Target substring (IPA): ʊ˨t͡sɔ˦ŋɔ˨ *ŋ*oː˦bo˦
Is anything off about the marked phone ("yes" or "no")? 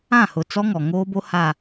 no